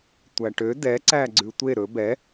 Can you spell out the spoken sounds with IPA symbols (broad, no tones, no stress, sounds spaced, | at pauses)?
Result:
tʷ æ ʈ ø d ɛ ǀ æ ɡ͡ǀ ʉ tʷ e ɾ ɵ b ɛ